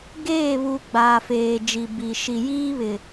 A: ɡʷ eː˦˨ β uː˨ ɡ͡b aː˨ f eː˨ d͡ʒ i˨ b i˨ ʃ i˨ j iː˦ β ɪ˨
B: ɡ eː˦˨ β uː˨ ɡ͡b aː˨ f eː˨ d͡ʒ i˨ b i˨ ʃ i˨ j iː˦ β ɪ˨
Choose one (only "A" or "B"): B